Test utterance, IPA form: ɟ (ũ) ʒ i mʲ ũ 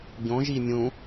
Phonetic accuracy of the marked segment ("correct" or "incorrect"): incorrect